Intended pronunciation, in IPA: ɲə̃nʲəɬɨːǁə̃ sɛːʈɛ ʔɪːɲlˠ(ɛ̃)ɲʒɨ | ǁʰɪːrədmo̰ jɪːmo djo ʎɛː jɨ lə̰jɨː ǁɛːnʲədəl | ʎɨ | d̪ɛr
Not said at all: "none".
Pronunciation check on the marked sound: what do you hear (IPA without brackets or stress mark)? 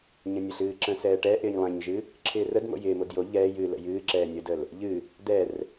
ɛ̃